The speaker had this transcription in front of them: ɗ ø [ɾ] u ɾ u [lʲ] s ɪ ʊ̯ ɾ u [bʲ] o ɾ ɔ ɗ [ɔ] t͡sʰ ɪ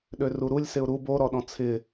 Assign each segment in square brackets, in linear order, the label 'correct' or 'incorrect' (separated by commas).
incorrect, correct, incorrect, incorrect